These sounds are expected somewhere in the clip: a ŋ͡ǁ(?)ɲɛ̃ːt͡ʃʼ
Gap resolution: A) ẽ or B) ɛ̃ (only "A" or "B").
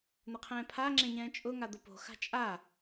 A